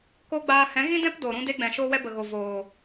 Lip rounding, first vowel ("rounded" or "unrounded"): rounded